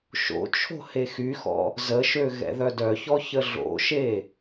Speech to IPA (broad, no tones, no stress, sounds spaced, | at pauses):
ʃ o̰ t͡ʃʰ o̤ h e x y x ɔ̰ | z ə ʃ ø ɣ ɛ̰ ð œ d œ ç ɔ ç ə ɮ o̰ ʃ e